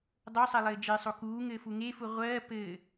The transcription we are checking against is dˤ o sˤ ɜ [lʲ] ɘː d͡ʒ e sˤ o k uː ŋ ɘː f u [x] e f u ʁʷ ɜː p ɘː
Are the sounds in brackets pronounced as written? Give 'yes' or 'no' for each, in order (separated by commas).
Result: no, no